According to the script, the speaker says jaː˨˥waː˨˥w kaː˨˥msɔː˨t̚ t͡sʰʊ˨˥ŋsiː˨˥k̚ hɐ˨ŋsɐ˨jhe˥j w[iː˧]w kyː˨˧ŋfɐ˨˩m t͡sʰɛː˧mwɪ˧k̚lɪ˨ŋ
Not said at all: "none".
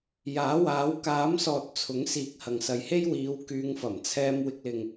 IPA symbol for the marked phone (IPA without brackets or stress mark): iː˨˧